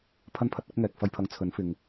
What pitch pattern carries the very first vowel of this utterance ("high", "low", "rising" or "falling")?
high